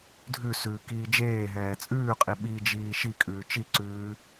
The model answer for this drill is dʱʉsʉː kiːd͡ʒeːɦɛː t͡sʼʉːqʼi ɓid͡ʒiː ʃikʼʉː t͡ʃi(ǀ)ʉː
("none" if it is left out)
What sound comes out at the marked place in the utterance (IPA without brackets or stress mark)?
ǀ